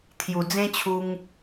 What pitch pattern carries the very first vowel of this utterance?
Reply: low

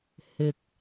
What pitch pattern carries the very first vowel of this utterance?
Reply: low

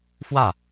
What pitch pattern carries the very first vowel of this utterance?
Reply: falling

